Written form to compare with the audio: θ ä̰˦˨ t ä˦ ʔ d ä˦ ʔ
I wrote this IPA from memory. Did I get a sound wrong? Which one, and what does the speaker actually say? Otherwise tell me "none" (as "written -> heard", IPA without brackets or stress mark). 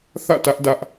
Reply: none